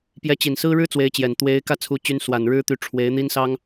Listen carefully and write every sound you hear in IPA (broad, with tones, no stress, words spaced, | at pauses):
pjɛ˧˥t͡ɕi˨˩nsɹ̩˥ ɻɻ̩˥ t͡swe˧˥ɪ̯t͡ɕjɛ˨˩n t̪we˧˥ɪ̯ kä˥˧ t͡sʰu˥˩t͡ɕy˥n swa˨˩nɻɻ̩˥t̪y˧˥ ʈ͡ʂʰwe˧˥ɪ̯ n̪i˥nsɑ˥ŋ